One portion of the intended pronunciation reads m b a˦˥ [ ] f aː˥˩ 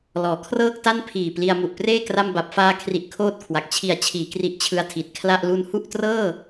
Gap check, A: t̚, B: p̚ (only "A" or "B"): B